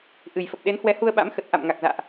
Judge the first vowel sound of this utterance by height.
high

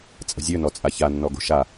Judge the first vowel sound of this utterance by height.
mid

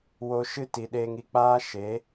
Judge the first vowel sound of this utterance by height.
mid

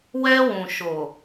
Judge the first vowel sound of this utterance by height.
mid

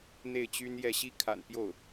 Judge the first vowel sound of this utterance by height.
mid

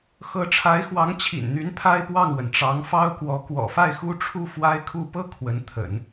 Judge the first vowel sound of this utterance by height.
mid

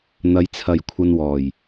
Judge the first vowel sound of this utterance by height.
low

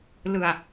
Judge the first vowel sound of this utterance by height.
high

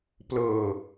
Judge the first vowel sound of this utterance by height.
mid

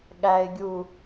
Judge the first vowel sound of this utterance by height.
low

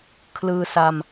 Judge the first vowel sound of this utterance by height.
high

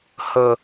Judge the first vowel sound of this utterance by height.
mid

